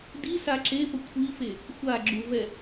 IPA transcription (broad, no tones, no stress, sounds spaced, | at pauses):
d i s a ǁ e p ə kʷʰ i f e | xʷ a ɡ͡ǁ u v ɛ